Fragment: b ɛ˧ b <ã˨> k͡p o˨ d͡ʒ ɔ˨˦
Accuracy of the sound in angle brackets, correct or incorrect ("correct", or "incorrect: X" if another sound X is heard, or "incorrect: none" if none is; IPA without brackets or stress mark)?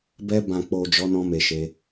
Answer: correct